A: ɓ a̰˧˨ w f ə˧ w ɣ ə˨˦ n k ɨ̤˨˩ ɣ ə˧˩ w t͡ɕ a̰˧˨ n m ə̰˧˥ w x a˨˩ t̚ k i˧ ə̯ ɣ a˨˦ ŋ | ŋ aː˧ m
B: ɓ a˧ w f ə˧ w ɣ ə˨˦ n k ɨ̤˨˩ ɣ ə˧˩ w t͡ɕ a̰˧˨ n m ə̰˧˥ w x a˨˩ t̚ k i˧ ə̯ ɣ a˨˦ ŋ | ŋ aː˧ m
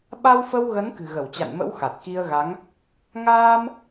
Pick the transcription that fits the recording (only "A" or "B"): B